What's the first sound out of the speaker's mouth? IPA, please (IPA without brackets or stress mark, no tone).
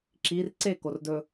ǁ